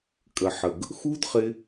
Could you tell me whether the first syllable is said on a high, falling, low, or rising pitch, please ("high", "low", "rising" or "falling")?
low